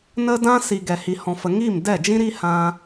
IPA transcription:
n ə˦ d ã˦ s i˨ ɡ ɛ˨ h i˨ h ɔ̃˨ f ə˨ ŋ i˦˨ m d ɛ˦˨ d͡ʒ ĩ˦ ɾ i˦ h ã˧

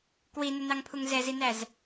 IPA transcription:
k w i n ə n ɑ ŋ pʰ u ŋ z ɛ z i n æ z

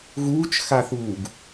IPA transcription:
ɣ uː t͡ʃ x a θ uː ɡ

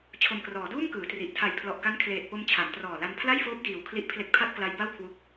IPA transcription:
t͡ɕʰ o˨˩ m k r ɔː˩˦ d uː˥˩ m k ɯː˩˦ t r i˨˩ ʔ tʰ a˨˩ j pʰ l ɔ˨˩ ʔ k a˦˥ n kʰ l eː˨˩ t̚ p o˧ m t͡ɕʰ a˩˦ m t r ɔː˨˩ l a˧ n pʰ l a˥˩ j f oː˦˥ p̚ d iː˨˩ w kʰ l i˦˥ ʔ pʰ l e˦˥ k̚ pʰ a˥˩ t̚ k l a˦˥ j b a˥˩ w kʰ w u˦˥ k̚

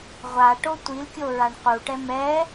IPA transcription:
ʁʷ a ʈ o tʷ i l kʲ o ɹ a ɳ q u ʈ ɛ m ɛ

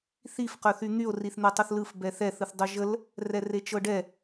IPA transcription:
θ i f q œ θ y n̪ y o̯ r i θ n̪ ɛ tˤ o θ l ɯ f b ɛ θ ɛ θ ɯ θ dˤ œ ʒ ə l | r ɛ r e t͡ʃ ɤ ɖ ɛ

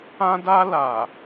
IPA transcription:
ã˧ d a˧ l a˨

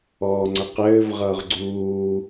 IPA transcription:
ɔː ŋ͡ǀ ə q ɘː v ʁ ʌː ʁ ɡ͡ǀ uː

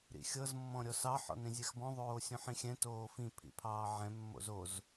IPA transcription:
ɾ ḭ xʲ ɤ z mː ɔ̃ ɾʲ ɔ s ɑ ħ ɔ̰ n ɾ ĩ zʲ ɛ x b ɔ̃ ðˤ oː sʲ õ ħ ĩ xʲ ɛ̃ t oː f ĩ pʰ ḭ pʰ ɑː ʕ ɛ̃ mː o̰ z o z

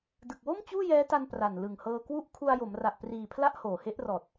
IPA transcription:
d ɯ˨˩ k̚ w o˥˩ m t͡ɕ uː˥˩ j ɛː˦˥ t a˧ n p r a˨˩ n l ɯ˨˩ ŋ h ɤː˧ k w u˥˩ ʔ kʰ u˧ a̯ j o˩˦ m r a˨˩ ʔ p r iː˨˩ pʰ l a˥˩ ʔ h oː˨˩ h e˦˥ ʔ r ɔː˨˩ t̚

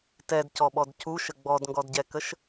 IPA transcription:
t ɛ d c ɔ ɓ ɔ d c u ʃ ə ɡ͡b ɔ d ŋ ɡ ɔ d ɟ ɛ k ə ʃ

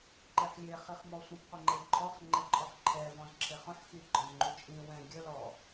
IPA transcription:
ǃ e ħ lʲ e χ i χ m ɔ sʷ ĩ p qʷ ə ŋ͡ǃ ɛ lʲ ǃʰ ɔ χ ŋ͡ǃ ɛ ǃʼ ɔ χ ǃʰ ɛ v ɔ̃ z ǁʰ e χ ɔ̃ ħ x i ɡ͡ǃ ɔ̃ z ŋ͡ǃ y t͡ʃʼ ĩ w ɛ̃ ɡʲ ə l ɔ

